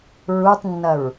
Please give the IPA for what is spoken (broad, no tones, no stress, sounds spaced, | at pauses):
ɹ u tˤ nː ɐ ɹ